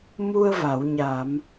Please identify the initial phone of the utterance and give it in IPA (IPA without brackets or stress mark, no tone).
m